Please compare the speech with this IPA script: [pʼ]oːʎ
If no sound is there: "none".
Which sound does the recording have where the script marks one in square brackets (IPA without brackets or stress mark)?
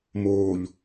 m